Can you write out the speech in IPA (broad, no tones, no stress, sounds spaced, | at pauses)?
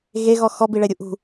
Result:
ɣ e ɣ ɔ x ɔ b i ɭ ɛ ɾʲ u ʔ ṳ